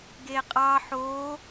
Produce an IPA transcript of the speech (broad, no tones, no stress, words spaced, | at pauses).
ɡeqʼɑ ħo